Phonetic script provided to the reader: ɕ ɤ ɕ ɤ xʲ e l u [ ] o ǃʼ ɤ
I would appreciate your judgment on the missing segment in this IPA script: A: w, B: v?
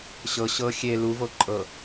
B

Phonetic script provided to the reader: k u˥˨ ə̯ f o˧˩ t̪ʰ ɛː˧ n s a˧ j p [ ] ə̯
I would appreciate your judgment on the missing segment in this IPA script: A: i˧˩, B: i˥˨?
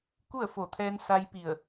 A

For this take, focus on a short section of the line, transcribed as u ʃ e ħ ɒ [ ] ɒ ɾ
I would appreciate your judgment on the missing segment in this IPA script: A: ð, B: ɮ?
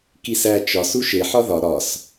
A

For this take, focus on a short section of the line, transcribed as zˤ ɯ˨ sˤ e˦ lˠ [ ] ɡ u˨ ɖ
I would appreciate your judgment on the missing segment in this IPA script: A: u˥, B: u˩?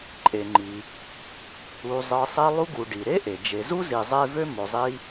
A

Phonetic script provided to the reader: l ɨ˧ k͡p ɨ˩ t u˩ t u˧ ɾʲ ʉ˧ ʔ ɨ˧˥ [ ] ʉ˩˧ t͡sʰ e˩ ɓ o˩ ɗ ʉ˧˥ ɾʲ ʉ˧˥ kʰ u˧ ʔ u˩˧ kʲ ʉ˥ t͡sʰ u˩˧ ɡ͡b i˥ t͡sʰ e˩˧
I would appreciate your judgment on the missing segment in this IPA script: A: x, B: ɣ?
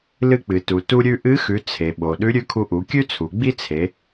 A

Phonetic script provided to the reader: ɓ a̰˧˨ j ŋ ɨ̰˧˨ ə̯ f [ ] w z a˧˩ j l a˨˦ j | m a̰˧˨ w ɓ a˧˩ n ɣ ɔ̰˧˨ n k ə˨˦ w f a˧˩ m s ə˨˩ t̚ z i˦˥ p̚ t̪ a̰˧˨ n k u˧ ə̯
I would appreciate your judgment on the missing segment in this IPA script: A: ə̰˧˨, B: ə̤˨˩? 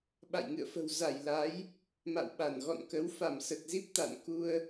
B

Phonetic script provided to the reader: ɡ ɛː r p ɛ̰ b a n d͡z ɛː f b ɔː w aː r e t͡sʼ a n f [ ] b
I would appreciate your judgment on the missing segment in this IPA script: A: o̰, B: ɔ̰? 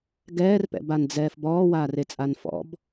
B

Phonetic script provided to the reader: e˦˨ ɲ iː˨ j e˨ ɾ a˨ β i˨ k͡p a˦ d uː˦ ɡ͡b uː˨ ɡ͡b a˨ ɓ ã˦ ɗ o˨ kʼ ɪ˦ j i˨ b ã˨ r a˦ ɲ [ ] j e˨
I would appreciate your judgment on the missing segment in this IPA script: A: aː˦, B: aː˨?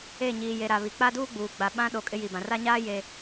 A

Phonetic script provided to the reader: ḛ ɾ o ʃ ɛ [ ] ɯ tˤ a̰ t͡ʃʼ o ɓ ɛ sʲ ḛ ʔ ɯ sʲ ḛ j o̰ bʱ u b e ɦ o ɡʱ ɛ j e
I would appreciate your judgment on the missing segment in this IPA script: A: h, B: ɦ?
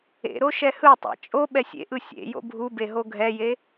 A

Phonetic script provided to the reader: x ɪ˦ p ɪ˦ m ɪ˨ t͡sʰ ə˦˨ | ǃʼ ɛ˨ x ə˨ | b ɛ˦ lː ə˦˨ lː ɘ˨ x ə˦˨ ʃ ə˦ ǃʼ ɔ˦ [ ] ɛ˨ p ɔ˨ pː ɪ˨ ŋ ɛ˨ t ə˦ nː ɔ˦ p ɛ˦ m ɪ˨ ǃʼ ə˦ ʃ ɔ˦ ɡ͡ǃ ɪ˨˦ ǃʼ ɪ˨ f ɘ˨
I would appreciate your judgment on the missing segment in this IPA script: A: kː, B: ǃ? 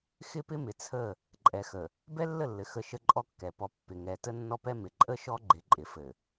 A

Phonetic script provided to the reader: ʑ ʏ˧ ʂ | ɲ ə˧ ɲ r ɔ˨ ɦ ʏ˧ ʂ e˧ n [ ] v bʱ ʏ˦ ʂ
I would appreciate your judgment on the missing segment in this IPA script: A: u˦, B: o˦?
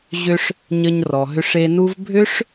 A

